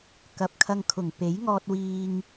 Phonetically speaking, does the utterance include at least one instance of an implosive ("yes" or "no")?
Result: no